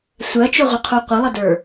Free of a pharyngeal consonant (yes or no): yes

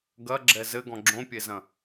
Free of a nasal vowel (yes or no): no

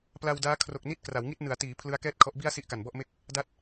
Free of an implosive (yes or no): yes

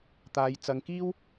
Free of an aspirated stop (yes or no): yes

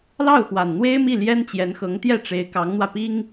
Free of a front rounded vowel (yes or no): yes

